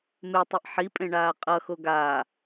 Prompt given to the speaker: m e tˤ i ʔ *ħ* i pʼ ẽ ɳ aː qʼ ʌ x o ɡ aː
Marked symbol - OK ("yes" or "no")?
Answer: yes